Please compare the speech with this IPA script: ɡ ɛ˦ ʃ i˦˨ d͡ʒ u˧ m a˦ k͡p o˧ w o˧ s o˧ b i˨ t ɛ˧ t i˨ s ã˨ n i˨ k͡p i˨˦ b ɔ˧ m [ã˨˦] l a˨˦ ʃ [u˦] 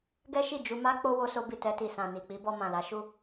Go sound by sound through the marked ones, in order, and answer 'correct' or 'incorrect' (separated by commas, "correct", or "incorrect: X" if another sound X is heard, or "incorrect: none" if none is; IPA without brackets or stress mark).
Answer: incorrect: ã˨, incorrect: u˦˨